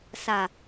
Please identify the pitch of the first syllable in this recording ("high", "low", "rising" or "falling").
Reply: low